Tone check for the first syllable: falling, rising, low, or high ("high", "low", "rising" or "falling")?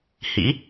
rising